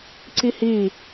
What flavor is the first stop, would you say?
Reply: click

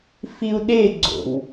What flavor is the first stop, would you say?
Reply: implosive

